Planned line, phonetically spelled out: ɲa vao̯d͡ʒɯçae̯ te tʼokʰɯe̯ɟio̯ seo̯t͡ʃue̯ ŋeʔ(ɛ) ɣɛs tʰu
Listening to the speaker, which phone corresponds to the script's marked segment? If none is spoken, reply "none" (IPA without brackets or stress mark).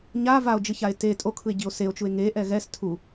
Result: ɛ